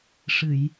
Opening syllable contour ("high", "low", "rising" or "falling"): low